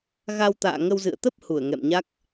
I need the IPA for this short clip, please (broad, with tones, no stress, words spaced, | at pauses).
ɣa˧wt̪a̰ː˧˨ ŋə˧wzɨ̰˧˨ə̯ t̪ə˦˥p̚ hu˧˩ə̯ŋɛ̰˧˨mɲa˦˥k̚